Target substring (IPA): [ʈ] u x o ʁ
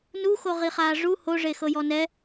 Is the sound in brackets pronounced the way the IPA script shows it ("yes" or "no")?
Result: no